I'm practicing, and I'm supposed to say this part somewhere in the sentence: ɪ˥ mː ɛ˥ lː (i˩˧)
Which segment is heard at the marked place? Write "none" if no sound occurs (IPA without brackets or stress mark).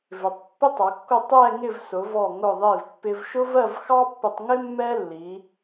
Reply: i˩˧